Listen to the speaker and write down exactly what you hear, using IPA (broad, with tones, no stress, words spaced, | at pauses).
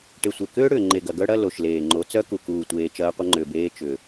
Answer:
ʈe˨sʷe˨kʏː˦ ɽʏː˨ŋ͡ǃe˨ɡɐ˨ ɡœ˦ɽɐ˦ lo˨ʃleː˨ŋ͡ǃo˨˦t͡sœ˦ ku˨kuː˨tʷeː˨ t͡ʃɐː˦qʷə˦ŋ͡ǃʏː˨beː˦ t͡ʃʏ˨